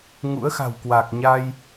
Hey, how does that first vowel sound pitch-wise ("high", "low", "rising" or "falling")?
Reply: rising